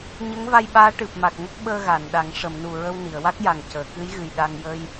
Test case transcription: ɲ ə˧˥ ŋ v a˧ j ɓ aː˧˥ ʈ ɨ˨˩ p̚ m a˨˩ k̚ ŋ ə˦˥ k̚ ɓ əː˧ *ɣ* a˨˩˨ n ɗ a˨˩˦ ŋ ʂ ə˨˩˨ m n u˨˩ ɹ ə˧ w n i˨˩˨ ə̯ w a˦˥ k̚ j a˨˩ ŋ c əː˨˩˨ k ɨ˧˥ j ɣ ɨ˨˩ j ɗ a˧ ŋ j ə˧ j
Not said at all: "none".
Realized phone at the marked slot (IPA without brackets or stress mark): ɣ